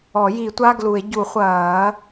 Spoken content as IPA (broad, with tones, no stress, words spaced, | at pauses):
ɔ˨˩˦ ji˨˩˦tʷa˧˥˧ɡlu˨˩˦e̯ ɟu˨˩˦χʷɐː˨˩˦